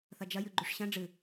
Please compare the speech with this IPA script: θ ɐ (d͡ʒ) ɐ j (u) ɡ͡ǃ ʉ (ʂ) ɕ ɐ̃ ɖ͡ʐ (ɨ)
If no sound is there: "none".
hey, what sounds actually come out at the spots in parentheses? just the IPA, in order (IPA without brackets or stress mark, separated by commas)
d͡ʒ, ʉ, ʂ, ɨ